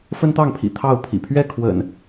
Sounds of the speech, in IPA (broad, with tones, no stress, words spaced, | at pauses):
fə˦nt̪ɑ˥˨ŋpʰḭ˨˩ t̪ʰɑ˥˨ʊ̯pʰḭ˨˩ pʰɥɛ˥˨kʰwə̰˨˩n